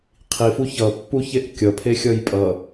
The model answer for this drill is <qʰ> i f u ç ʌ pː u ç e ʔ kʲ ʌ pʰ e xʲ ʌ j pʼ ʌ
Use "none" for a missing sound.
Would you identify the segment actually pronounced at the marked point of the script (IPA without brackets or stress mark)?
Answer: qʰ